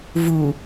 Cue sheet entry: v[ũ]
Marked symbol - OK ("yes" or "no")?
no